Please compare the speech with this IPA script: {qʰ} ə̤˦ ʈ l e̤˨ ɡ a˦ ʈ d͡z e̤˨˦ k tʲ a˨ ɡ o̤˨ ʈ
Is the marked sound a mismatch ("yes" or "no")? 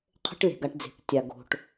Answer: no